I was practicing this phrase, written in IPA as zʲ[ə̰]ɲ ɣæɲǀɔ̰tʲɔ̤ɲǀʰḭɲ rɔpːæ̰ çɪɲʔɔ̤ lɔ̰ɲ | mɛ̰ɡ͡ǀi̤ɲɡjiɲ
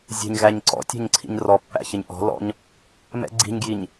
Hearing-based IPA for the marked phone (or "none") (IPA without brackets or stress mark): ə̤